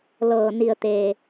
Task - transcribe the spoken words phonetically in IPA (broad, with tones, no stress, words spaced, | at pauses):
lɤː˩ ni˩ə̯t̪eː˩